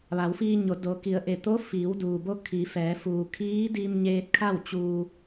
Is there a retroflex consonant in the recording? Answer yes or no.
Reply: no